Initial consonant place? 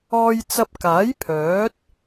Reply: palatal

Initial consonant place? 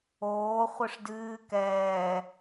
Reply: uvular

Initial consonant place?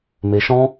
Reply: labial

